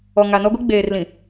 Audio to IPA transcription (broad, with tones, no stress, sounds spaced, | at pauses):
ɔ˨ ŋ a˨ n ɔ˦ ɡʷ i˦ ɡ͡b eː˨ r l ĩ˨